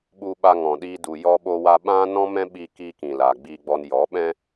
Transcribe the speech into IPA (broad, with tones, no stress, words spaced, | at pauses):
ɓu˧ɓa˧ŋɔ̃˨ɗiː˧ du˨jɔ˧ɓo˧wa˧ ɓã˦nɔ̃˦mɛ̃˦ ɓi˧kiː˧ kĩ˨la˨ɡ͡bi˧ ɡ͡bɔ˧n jɔ˨˦ɓɛ̃˦